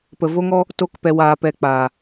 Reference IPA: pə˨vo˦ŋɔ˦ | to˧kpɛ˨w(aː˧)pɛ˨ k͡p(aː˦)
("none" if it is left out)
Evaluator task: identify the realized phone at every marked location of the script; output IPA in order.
aː˨, aː˨

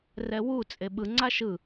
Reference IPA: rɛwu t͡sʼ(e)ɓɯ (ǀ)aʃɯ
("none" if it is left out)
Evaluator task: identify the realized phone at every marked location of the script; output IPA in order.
e, ŋ͡ǀ

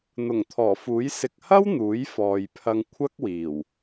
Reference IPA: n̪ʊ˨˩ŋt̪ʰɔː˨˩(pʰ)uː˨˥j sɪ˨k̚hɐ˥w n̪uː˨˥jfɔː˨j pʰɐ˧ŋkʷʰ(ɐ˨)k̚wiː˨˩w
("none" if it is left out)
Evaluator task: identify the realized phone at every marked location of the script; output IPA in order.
f, ɐ˥

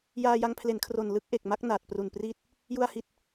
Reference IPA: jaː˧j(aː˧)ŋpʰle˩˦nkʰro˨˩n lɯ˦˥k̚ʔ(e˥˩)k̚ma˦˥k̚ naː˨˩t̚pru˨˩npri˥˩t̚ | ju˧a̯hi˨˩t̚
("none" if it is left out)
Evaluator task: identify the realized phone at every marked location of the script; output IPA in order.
a˧, e˨˩

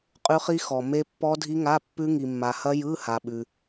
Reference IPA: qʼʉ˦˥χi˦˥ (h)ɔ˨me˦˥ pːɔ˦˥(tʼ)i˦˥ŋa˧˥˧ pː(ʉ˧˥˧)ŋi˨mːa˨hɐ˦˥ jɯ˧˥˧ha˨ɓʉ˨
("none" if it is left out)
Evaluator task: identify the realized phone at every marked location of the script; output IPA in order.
x, dʱ, ʉ˦˥

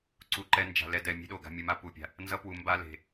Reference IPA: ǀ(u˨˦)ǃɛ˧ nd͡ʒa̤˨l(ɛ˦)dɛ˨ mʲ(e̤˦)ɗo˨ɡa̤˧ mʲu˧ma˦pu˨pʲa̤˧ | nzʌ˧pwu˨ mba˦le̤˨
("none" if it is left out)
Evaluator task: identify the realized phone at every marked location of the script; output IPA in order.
u˧, ɛ˧, e̤˦

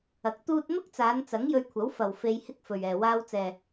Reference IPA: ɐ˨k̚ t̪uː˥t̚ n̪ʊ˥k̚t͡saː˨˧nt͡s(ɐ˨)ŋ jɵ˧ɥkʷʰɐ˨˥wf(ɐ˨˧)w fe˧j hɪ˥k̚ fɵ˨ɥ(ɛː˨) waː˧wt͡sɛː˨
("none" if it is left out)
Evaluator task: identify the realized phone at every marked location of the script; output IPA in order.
ɐ˨˥, ɐ˨, ɛː˨

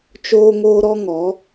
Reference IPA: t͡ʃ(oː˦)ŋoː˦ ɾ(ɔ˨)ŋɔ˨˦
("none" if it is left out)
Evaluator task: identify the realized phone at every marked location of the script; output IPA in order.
oː˦, ɔ˦

